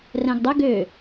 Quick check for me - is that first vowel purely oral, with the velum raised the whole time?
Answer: no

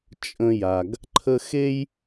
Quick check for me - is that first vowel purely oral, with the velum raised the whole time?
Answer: no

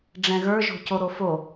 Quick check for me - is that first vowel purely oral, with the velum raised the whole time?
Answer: no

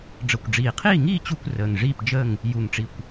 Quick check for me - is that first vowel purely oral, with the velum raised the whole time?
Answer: yes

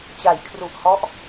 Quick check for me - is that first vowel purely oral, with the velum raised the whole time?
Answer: yes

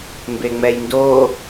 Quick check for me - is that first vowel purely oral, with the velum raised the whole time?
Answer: yes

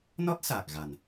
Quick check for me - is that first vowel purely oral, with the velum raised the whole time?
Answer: yes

